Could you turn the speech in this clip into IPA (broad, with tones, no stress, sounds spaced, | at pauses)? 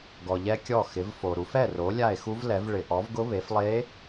ɡ ɔ˨ ʎ ɛ˧˥ kʲ ɔ˥˩ x ɪ˩˥ v f o˨ ɾ u˩˥ f ɛ˥˩ r o˩˥ lʲ a˥˩ e̯ x u˧˥ v l ɛ˩˥ v ɭ ɪ˨ ʔ ɔ˩˥ v ɡ ʊ˧˥ β e˩˥ f lˠ e˧˥